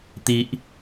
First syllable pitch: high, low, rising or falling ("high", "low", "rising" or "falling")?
high